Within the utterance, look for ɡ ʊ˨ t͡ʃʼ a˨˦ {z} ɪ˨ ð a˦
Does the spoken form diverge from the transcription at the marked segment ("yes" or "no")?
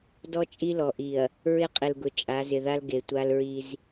no